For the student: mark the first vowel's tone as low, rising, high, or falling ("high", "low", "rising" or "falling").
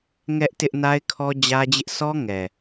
high